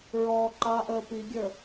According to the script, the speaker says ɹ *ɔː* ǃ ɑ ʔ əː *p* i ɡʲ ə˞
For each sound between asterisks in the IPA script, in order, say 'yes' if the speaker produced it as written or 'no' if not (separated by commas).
yes, yes